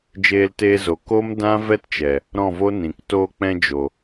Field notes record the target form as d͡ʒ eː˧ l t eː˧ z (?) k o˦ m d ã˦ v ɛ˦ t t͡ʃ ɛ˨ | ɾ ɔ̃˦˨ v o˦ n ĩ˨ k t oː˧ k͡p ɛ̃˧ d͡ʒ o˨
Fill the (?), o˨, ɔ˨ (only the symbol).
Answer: o˨